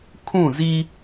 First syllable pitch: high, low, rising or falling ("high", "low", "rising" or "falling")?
falling